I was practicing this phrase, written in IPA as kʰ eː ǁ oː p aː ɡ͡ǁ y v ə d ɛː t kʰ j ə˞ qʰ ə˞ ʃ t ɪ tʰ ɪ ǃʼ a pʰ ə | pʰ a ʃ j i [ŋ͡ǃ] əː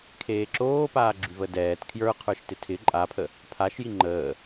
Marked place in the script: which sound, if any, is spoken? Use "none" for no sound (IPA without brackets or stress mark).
ŋ͡ǃ